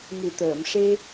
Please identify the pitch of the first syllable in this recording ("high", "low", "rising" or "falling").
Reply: low